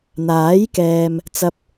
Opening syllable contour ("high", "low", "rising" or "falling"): rising